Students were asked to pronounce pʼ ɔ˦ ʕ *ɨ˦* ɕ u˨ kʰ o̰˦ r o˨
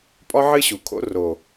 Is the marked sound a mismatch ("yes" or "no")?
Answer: no